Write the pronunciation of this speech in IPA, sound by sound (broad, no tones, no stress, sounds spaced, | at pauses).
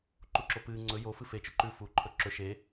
ǃ u ǁ o p ɨː ŋ͡ǀ ɵ j o f ɨ f e t͡ʃ ɵ ǃ ʉ f uː ǃʰ ɵ ǁ ɵ ʃ e